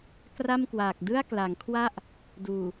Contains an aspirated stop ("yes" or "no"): yes